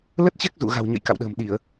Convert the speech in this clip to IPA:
lə˦˥t̚t͡ɕɛ˦˥k̚ zṵ˧˨ɣa̤˨˩w ɲə̰˧˨j ka̰˧˨wɗə̤ː˨˩mɗi˧˩˨ə̯

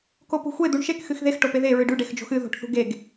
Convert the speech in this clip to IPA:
kopṳxʷe d̪uɳʃek xɨxðex ʈopeðe ɹɨɖʉɖ exd͡ʒo̤xɨ ðo̤ʈθṳɡeɡ

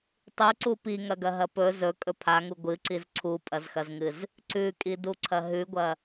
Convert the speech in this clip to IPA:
tˤʉǀu piŋɐɡɐɦɐ pɵ zɵkʼɵ pʰaŋu ɡʷɨǀiz ǀʰupʼɐzxɐzŋɨz | ǀʉkʼiduǀʰɐ ɦʉɡʷɐ

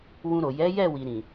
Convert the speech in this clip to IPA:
wũ˧ɾo˨ jɛ˨˦jɛ˦˨ wi˧ ɾĩ˨

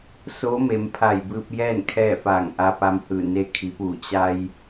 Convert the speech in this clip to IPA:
so˧˥me˩˧mpʰa˧˩j bɯː˧p̚jɛː˥˨n kʰɛː˥˨faː˧˩ŋ ʔa˧pa˧mhɯː˧˩ ne˧kʰi˩˧puː˧˩ t͡ɕa˧j

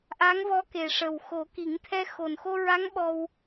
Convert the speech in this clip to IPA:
ʔa˧˥ŋvɔ˧˥ke˨˩ʂə˨˩w xo˨˩˦ki˨˩˦ŋt̪ʰɛ˧ xo˨˩nxo˧ɹa˧˥ŋ ɓɔ˧w

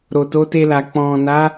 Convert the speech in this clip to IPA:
ɾo˨to˨˦te˧la˨ k͡pɔ̃˨na˨˦

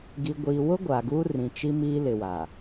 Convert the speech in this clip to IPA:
ɡi˨ɡʷiː˨wʊ˦ ɡʷa˨ɡuː˦rĩ˨ t͡ʃi˦mi˦ lɪ˨wa˨

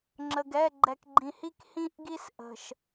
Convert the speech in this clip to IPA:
ŋ͡ǁə˨ɡɛ˦˨ɡ͡ǃɛ˨kɡ͡ǃĩ˨ hi˦khĩ˦˨ʔɡi˦s ʔə̤˨ʃ

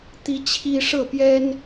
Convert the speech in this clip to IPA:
t̪i˦t͡ɕʰi˦ ʂɤ˥˨pjɛ˦n

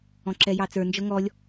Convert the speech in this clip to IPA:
ɔ̃ǁɛjɑt͡sə˞ nd͡ʒɤŋɔlʲ

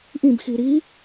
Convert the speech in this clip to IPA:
ʔĩbxi ɾi

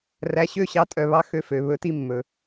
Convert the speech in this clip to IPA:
ræ˩˥ɕø˥˩ɕɑ˧tʼœ˩ βɑ˥ xø˧fø˩ βɵ˩˥ti˧ mːɵ˩

